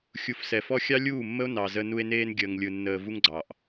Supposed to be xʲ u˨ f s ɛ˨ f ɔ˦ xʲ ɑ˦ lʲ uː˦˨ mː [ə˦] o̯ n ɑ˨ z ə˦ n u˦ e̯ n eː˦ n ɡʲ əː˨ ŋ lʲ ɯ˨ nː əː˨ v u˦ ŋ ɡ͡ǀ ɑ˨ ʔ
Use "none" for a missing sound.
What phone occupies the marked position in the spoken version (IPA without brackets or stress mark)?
ə˦